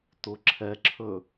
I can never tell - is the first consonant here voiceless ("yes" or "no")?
yes